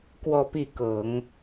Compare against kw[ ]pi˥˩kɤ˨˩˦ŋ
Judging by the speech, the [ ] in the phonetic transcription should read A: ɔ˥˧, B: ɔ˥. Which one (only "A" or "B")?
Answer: A